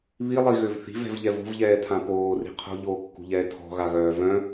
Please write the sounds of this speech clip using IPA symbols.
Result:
β i lˠ i ɣ ø v θ i̤ v ɛ̤ v ʎ ɛ v o̤ v ʎ ɛː tʰ ã p oː r i̤ qʰ o̤ ʎ oː kː ṳ ʎ ɛː tʰ ɔ̤ ɣ a ɣ œː v œ̃

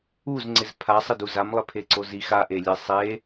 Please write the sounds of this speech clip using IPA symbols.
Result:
u z ŋ͡ǀ ɪ z pʰ a sˤ ɪ d u z a m lˠ e pʰ e ǀ o z i x a ʔ e lʲ e sˤ e

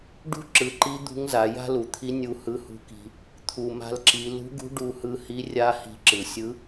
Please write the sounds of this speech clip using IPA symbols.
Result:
ɖ ṳ˥ ǁ ɯ˩˧ ǃ i˧˥ d̪ ṳ˧˥ ŋ z a˩˧ j a̤˥ l u˩ t̪ʰ i˧˥ nʲ u˧ h ɯ˧˥ h ṳ˧˥ k i̤˧ | t̪ʰ u˩ m a̤˧ l ǁ i˩˧ l ṳ˧˥ ɡ ṳ˧˥ ɖ u˧ h ɯ˧ h i˧˥ rʲ a˧˥ h i̤˧ ǁ ɯ˩ sʲ ɯ˧˥

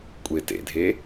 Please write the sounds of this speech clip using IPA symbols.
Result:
kʷʼ e t ḛ dʱ e

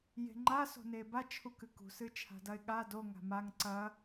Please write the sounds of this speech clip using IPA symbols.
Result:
j e̤ ŋ͡ǃ a s o̤ n eː b a t͡ʃʰ u k ɨ k ṳ s ɨ t͡ʃʰ a̤ d ɐ ɪ̯ ɠ a d o ŋ a̤ m a ŋ ǀ ɐ

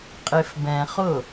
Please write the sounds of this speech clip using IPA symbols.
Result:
qʼ e f b ɛ̃ χ ʊ

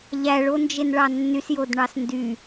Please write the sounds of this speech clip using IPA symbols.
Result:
ʎ æ ɭ o n d͡ʒ e n ɭ ɑ nː y s j o d ɳ ɑ s n d y

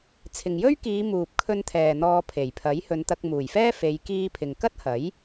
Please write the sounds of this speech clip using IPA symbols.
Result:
t͡sʰ ɪ˨ ŋ j ɵ˥ ɥ k iː˨˧ m uː˨ p̚ kʰ ɵ˧ n t̪ʰ ɛː˨ n̪ ɔː˧ pʰ e˨˩ j pʰ ɐ˨˥ j h ɵ˨˧ n t̪ ɐ˧ k̚ m uː˨˩ j f ɛː˥ f e˨˧ j k iː˧ pʰ ɪ˨ ŋ k ɐ˥ t̚ h ɐ˨˥ j

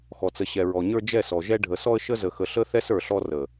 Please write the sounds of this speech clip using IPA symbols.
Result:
x ɔ˨ t͡s ə˨ ɕ ɛ˨ ɹ ɔ˨ ɲ ə˞˦ d͡ʒ ɛ˦˨ s ɔ˨ ʒ ɛ˦ ɖʱ ə˨ s ɔ˦ ə̯ ʃ ə˦ z ə˨ x ə˨ ɬ ə˦ θ ɛ˦ s ə˞˨ ɬ ɔ˦ r ə˨

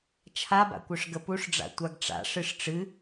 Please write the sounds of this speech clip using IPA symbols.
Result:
t͡ʃʰ a b a̰ kʷ œ ʂ ɡ ə p u ʂ ɖ͡ʐ a̰ tʷ a ɡ ʈ͡ʂ a̰ ʂ ɨ ʂ ʈ͡ʂ ɨ

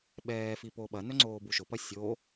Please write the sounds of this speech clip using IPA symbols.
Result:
ɓ ɛː f i p o ɓ ɐ n œ ŋ͡ǀ oː b u ʃ ʊ p ɐ sʲ o

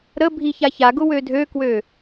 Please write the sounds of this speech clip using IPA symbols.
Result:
ɾ ə bʱ i ç a ç a ɡ ʊ w ø dʱ ø k w ø

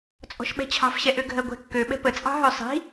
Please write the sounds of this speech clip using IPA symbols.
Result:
t͡sʼ ɔ̤ ʃ ɓ ɛ̤ t͡ɕʰ ɑ̤ f ɕ ɛ ʔ ø ɡʱ ɜ ɡʷ ɛ̤ kː ø ɓ ɛ̤ p ə t͡sʼ ɑ̤ ɦ ø sˤ i̤

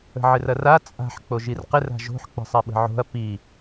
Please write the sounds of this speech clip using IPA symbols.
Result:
ə̤ ʕ ɪ r ɐ r a t͡sʼ a̤ ħ k͡p o ʒ i r q ɪ r a̤ ʒ o̤ ħ k͡p ə̤ sˤ ɛ ɓ ə̤ ʕ o̤ ɐ̯ p i

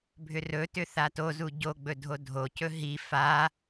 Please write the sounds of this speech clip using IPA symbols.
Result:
bʱ ʏ r ɵ t ʏ θ a t o z u ɟ o ɡ͡b ɵ dʱ o dʱ o c ɵ ɦ i f a

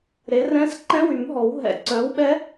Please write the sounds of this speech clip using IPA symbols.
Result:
ɾ e˨˥ r ɛ̃˦˥ s ǃ ɛ̃˦˥ w y˨˩˦ m ɦ ɔ˨˩˦ w ɦ ɛ̰˨˥ ǀ œ˨˥ w ɓ ɛ˦˥

